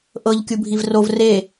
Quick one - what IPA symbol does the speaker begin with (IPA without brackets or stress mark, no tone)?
ʔ